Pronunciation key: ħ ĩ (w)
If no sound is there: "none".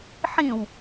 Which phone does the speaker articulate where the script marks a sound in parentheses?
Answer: w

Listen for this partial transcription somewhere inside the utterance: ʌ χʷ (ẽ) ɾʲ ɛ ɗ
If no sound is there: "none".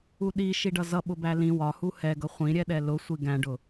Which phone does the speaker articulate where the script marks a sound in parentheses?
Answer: ĩ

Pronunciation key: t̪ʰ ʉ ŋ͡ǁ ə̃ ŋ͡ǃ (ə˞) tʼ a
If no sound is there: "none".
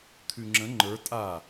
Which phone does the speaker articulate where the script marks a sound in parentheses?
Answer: ə˞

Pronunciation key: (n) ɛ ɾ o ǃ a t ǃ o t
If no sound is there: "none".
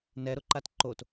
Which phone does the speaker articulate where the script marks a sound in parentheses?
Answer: n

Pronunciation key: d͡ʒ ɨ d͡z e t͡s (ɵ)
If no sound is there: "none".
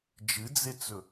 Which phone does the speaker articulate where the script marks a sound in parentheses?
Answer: ɵ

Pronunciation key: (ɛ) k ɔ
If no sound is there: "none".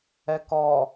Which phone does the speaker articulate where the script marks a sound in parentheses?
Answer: ɛ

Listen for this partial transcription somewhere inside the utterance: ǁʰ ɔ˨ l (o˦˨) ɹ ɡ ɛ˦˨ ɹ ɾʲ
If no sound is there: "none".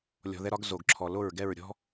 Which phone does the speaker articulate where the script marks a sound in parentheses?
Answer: o˦˨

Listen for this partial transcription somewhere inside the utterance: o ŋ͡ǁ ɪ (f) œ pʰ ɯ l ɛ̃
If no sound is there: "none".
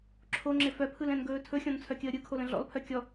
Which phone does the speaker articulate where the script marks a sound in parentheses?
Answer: f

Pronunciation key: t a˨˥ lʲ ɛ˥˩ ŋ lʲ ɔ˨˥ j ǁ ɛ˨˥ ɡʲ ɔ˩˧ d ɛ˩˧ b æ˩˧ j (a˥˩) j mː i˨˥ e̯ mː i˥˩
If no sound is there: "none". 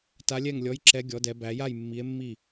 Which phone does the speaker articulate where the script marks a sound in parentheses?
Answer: a˥˩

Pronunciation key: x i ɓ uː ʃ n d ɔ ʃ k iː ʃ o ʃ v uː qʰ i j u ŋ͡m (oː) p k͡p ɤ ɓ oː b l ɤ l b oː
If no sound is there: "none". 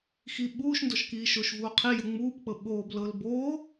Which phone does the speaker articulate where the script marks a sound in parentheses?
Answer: uː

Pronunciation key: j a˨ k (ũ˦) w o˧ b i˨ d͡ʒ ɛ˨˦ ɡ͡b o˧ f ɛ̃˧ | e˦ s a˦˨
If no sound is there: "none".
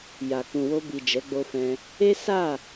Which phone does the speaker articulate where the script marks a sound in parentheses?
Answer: ũ˨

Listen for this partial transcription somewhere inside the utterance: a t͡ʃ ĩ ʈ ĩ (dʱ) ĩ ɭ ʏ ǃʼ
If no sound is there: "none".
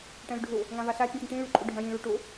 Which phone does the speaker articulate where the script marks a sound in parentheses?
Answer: ʈ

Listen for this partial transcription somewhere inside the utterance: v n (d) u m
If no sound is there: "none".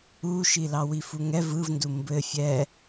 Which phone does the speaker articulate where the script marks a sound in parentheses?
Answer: d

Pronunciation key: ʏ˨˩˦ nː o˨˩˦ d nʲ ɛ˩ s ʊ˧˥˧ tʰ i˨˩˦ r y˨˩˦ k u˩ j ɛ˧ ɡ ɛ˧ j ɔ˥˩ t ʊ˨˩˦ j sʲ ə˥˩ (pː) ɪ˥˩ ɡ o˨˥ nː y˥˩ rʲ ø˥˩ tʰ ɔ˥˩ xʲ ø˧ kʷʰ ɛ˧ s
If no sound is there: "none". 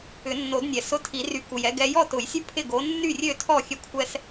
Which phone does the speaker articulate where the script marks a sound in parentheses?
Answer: pʰ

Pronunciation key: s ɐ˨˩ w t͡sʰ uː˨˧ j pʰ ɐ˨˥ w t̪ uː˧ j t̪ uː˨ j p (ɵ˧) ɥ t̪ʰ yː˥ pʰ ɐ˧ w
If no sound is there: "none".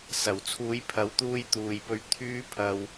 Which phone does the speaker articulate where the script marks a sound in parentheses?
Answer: ɵ˧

